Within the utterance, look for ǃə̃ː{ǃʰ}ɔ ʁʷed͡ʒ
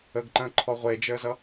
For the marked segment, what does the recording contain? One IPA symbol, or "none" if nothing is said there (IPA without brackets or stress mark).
ǃʰ